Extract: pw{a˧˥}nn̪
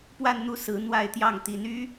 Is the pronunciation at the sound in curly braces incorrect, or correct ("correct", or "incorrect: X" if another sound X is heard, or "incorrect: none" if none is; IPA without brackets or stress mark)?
incorrect: a˥˧